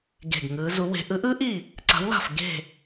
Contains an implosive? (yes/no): no